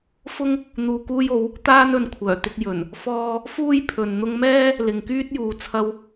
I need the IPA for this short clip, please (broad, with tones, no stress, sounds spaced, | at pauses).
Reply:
f ʊ˥ ŋ | n̪ uː˨ k uː˧ j o˨˧ w | t̪ aː˥ n ɵ˨˧ n kʷʰ œː˨˩ t̪ ɪ˧ k̚ j ɵ˨˩ n | f ɔː˧ | f uː˥ j pʰ ɵ˨ n n̪ ʊ˧ ŋ m ɛː˥ | l ɪ˨ ŋ k yː˥ t̚ j uː˨ t͡sʰ ɐ˧ w